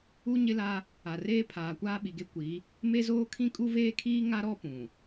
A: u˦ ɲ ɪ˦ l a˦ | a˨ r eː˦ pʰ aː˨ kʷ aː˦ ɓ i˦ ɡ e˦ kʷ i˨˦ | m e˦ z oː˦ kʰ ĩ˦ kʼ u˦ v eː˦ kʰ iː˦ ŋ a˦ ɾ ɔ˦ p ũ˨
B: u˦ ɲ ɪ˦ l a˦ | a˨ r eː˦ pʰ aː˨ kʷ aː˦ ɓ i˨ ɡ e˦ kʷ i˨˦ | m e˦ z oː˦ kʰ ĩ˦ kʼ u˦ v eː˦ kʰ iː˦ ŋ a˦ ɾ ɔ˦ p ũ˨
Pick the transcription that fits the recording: B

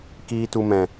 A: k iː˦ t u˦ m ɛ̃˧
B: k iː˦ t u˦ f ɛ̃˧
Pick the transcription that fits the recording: A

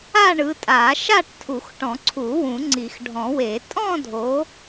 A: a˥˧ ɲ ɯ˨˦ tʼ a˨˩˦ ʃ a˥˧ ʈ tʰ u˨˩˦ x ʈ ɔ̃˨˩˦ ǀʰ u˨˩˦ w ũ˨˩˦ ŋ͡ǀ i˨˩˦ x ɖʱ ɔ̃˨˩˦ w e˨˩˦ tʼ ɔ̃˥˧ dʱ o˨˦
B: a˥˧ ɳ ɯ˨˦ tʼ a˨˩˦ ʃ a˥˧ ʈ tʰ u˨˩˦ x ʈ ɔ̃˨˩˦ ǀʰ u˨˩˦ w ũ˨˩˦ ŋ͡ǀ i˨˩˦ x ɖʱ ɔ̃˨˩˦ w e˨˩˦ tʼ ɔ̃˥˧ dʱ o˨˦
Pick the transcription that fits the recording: B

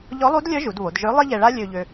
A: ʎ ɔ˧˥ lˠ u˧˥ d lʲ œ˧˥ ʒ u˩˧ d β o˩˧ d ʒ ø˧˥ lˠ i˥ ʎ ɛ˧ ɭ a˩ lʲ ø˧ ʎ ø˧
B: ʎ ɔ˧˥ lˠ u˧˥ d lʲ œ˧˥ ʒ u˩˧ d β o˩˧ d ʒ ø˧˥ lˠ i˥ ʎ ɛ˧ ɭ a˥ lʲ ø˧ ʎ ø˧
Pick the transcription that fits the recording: B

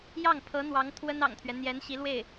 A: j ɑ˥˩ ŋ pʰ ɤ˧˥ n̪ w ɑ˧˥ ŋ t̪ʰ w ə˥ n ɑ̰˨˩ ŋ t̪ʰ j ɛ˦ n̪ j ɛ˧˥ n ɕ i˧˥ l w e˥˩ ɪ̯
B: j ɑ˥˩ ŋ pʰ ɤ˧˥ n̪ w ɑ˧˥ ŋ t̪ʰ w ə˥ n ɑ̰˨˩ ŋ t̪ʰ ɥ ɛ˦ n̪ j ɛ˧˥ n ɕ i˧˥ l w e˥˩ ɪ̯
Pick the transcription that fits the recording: B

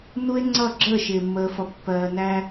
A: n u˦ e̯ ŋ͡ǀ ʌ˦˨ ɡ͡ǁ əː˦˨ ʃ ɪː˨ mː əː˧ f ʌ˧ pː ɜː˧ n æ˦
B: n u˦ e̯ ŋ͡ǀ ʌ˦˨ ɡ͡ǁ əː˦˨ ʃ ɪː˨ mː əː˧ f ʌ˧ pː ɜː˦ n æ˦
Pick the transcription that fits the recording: A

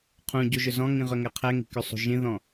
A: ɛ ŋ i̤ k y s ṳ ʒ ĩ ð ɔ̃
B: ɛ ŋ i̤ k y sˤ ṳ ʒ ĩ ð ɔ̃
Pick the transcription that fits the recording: B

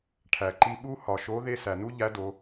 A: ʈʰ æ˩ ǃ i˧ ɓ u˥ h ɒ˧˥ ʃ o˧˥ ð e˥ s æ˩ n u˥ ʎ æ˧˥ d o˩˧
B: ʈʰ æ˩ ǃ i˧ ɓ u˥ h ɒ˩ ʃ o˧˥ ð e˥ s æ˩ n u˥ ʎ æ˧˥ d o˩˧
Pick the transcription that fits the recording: B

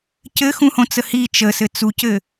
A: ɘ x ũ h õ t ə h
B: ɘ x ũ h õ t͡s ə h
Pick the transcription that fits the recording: B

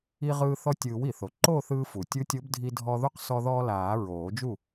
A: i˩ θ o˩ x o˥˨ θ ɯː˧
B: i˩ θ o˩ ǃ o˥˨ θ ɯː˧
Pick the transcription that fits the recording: B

